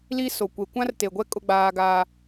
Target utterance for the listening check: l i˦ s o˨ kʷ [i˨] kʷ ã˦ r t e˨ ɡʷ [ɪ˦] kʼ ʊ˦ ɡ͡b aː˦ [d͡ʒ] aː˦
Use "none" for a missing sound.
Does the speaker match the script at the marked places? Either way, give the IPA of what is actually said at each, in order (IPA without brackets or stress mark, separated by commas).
e˨, ɛ˦, ɡ